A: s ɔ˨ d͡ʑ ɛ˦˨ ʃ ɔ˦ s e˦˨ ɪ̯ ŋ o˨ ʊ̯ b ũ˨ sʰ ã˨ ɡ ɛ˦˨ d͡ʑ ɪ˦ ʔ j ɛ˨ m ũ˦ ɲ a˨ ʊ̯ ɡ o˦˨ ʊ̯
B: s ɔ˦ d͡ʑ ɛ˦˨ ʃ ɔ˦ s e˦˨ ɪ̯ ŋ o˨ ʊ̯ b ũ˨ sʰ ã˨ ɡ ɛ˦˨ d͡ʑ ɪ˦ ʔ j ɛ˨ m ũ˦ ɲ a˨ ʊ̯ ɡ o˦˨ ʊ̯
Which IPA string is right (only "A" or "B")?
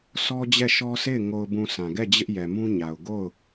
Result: B